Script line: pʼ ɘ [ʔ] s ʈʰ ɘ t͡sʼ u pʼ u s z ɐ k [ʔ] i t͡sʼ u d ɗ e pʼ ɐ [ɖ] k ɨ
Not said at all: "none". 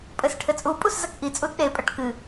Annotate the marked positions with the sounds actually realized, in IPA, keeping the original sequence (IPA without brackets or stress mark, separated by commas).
none, ʔ, ʈ